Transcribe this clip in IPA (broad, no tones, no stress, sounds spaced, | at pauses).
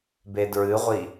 b e d ɹ ɨ ʁʷ i